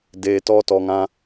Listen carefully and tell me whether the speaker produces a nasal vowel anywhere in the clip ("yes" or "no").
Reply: yes